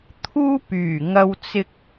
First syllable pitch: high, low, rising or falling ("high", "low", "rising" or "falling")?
high